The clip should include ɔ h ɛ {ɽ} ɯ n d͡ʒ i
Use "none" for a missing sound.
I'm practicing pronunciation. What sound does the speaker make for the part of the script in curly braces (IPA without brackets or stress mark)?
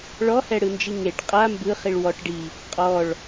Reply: ɽ